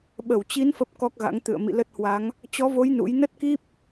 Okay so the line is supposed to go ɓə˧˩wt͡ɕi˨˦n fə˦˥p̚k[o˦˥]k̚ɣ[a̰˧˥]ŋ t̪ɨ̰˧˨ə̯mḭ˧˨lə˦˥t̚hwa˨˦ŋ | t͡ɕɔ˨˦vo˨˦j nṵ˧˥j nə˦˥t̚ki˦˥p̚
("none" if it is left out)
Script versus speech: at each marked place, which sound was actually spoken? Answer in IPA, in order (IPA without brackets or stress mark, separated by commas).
ɔ˦˥, a̰˧˥